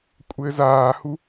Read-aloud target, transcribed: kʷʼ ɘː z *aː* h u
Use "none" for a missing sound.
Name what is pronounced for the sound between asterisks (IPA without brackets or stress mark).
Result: aː